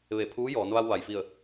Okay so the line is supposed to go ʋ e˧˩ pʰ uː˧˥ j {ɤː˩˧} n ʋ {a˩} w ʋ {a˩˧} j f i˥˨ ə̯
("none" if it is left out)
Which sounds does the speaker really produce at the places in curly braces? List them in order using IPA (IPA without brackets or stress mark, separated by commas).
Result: ɔː˩˧, a˧, a˩˧